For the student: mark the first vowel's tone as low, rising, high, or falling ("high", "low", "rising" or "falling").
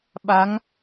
rising